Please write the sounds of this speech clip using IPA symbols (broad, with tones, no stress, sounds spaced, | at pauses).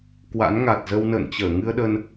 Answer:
k w a̰˧˥ n ŋ a˨˩ t̚ z ə˧ w n ə̰ː˧˨ n t͡ɕ əː˧˩ ŋ ɨ˧ ə̯ ɗ ə˧ n